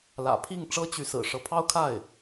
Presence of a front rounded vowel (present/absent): present